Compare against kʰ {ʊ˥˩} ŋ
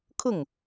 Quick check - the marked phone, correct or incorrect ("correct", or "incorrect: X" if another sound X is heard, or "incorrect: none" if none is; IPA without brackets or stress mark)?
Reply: correct